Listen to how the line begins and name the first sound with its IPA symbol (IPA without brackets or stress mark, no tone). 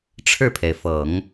ʈ͡ʂʰ